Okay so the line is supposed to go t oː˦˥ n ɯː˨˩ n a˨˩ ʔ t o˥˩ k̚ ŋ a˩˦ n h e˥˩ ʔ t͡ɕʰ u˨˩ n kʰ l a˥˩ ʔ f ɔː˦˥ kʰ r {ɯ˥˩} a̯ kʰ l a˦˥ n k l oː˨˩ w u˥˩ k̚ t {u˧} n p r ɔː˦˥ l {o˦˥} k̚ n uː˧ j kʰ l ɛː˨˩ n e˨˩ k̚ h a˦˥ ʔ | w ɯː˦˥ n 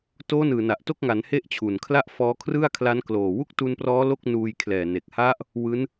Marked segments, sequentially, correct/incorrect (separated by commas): correct, correct, incorrect